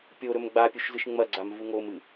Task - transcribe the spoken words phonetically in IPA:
pʲoɾɵm ɡ͡bapʲuʃ zɨʃŋ͡mɐɡ͡ǀam vuŋomɨ

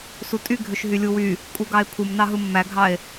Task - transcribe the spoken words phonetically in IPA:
sutʼy ɡʱøʃɦylʲuwy | kʼuɡɑe̯pʰum nɑɦɯmːæɡʱɑe̯

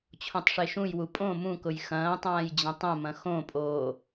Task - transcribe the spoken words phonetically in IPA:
t͡ɕʰõtˤʂeʃũjwu pʼõ mũkʊj xɐ̃ːtˤãːj d͡ʑɐ̃tˤɐ̃mɐ̃ xõpʼoː

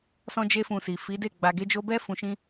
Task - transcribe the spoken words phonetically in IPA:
sɔ̃˧d͡ʒe˧fũ˨ si˨ fi˨˦de˦˨ ɡ͡ba˨ɡe˧d͡ʒo˧bɛ˦ fũ˧ʃĩ˦

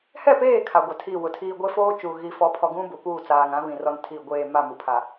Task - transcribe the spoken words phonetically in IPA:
hɛ˦˨peː˦˨ kʰa˨ɡʷa˨tʰi˦˨wʊ˨ tʰiː˨ ɡʷe˦foː˦t͡ʃuː˨ ɣi˨fɔ˨˦pʰɔ˨ɡũ˦ bʊ˨puː˦˨t͡saː˨ŋã˨˦ βĩ˨rɔ˦ntʰi˦˨ ɡʷeː˦˨ ma˦˨mu˨pʰa˨

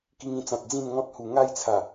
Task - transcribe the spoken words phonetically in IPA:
ki˧ŋĩ˧t͡sã˨t̚ d͡zĩ˥˧nŋɔ̃˦t̚hu˨˩ ŋa˥˧jt͡sʰa˨˩

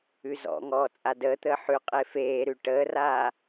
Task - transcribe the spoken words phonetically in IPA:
ʉzɔ̰ŋɔː t͡sʼadəːt̪əː ħʉ qʼefeːɾʉ ʈəːraː

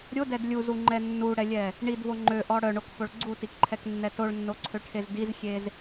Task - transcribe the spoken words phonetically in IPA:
ɾʲodɛd lʲuzuŋ͡ǃɛ nːuɽɛlʲɛ | ɳidvo ŋ͡ǃøʔɔ ɽœɳokfoɭ ɡ͡ǀutikǃʰɛknːɛ toɭnːoǀʰøʈʰez dizxʲez

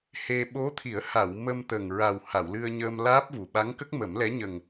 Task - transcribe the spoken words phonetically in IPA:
he˧ ɓo˧˥t̪ʰi˨˩˦ə̯ ha˨˩˨w mə˧mt̪ə˨˩ŋɹa˨˩w ha˨˩˨wlɨ˧ə̯ɲəː˧m laː˦˥p̚vu˨˩ ɓa˧˥ŋkə˦˥k̚mə˨˩˦mlɛ˧˥ ɲə˨˩ŋ

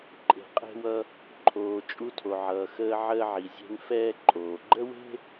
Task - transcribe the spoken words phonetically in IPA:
ǃʼe̤˩qʼe̤˧wʌ˧ | ǃʰoː˩ t͡ʃʼu˧tʰo˩ʕʌː˩xəː˧ ʕəː˧ʕi˩zʲe̤˧n fɛː˧ǃʼoː˩ɡ͡ǃə˥we̤˥

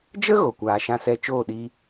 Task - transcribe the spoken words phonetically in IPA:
d͡ʒə˦ ɣo˨kʷaː˨ʃã˧sɛ˧ t͡ʃoː˦˨ɗiː˧

